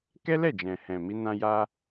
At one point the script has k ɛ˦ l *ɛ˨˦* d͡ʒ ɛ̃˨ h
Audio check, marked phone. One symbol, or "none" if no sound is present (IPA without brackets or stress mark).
ɛ˦˨